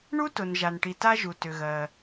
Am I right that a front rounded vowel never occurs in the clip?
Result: no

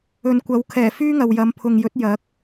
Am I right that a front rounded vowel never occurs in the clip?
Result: no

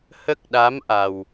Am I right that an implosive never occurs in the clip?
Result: no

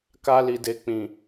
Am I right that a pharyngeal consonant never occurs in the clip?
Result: yes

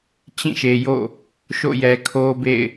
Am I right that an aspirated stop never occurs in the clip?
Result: no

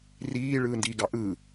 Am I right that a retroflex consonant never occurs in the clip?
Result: no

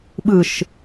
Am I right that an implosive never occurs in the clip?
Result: no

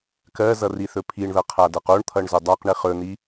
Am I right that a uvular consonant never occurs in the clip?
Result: no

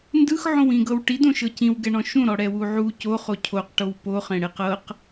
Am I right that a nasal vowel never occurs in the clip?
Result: no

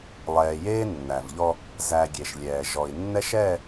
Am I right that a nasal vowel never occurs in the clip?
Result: yes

